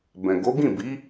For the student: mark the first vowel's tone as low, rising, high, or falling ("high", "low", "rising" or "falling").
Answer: low